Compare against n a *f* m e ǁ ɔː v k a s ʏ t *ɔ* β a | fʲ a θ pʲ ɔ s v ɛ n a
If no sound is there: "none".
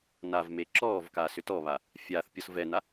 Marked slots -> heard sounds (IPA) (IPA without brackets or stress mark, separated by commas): v, ɔ